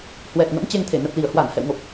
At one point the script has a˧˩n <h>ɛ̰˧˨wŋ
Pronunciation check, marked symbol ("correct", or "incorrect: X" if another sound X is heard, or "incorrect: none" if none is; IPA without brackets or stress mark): correct